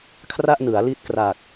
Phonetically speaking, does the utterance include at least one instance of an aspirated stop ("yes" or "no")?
yes